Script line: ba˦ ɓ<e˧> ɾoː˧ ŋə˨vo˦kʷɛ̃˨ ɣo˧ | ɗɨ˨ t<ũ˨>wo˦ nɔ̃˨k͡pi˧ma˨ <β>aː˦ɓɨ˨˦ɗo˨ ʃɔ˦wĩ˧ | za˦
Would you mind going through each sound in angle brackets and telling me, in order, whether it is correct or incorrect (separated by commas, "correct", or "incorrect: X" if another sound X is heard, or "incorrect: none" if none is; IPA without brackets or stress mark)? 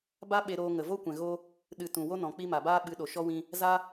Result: correct, correct, incorrect: b